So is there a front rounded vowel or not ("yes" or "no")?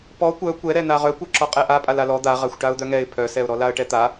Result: yes